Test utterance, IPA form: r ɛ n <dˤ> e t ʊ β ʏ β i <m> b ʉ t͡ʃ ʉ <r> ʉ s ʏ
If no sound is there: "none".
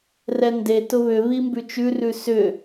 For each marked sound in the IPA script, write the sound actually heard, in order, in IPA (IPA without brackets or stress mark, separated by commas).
d, m, r